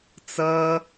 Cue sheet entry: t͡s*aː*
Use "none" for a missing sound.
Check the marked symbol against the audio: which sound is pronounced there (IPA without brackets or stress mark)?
ʌː